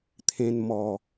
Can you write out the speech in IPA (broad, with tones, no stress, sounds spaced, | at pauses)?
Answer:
t̪ʰ ẽ˧ n m ɔ˨˩